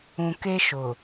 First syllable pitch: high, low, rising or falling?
low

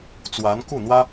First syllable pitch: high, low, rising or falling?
rising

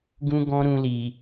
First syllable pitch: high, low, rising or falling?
high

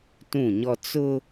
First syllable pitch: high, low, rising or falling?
falling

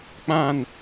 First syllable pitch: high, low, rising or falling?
falling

